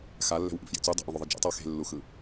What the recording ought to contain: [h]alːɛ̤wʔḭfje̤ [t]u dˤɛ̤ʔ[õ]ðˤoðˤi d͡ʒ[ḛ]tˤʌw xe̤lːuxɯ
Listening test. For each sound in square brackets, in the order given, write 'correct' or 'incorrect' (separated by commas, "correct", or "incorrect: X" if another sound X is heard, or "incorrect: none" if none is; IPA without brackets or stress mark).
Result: incorrect: x, incorrect: t͡s, correct, correct